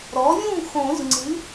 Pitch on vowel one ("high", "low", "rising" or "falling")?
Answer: rising